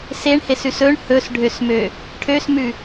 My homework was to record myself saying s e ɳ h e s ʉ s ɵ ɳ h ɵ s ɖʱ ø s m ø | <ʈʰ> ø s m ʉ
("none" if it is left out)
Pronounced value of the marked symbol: ʈʰ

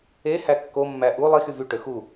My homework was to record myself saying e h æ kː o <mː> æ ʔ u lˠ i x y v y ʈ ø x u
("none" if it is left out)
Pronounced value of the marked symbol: mː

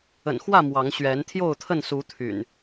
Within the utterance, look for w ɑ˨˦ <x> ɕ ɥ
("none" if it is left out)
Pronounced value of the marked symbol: ŋ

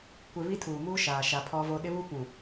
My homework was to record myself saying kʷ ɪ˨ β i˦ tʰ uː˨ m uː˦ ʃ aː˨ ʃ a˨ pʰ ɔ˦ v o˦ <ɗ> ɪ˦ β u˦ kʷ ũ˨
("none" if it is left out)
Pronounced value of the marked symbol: ɗ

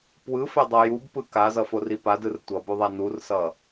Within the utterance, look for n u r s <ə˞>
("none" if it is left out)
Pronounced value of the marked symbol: ʌ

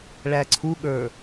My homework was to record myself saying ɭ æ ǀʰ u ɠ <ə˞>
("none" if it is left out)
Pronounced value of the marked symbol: ə˞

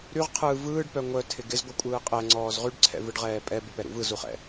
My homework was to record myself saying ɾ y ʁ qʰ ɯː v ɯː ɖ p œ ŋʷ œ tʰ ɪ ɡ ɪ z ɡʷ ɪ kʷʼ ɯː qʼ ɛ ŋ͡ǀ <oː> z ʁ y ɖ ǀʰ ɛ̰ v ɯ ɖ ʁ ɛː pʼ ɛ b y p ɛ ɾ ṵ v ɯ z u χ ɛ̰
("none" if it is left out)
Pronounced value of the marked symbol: ɔː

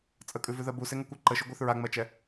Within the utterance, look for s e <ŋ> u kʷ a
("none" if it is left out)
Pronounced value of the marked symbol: ŋ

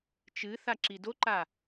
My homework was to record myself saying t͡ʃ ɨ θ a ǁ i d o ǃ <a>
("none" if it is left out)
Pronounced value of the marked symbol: a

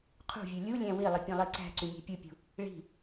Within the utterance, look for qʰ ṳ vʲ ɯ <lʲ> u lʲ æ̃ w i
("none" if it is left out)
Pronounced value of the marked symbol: lʲ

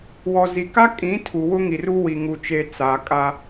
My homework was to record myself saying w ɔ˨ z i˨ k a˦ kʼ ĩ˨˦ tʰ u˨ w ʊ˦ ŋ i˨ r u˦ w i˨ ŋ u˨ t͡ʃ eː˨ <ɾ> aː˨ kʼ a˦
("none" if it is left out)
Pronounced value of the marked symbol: t͡s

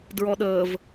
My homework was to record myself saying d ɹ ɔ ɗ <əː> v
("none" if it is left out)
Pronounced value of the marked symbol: əː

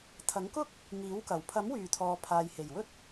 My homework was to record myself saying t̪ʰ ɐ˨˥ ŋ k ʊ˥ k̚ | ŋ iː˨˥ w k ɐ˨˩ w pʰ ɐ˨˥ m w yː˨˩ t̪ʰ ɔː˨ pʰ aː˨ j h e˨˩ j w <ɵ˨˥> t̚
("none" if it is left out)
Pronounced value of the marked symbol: ɵ˥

